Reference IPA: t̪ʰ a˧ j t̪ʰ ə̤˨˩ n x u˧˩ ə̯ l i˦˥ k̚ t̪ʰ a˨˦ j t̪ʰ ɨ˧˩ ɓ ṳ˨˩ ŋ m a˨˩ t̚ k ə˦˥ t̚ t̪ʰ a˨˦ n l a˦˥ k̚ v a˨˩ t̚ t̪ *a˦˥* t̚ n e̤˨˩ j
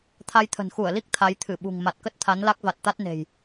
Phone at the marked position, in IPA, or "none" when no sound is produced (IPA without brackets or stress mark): a˦˥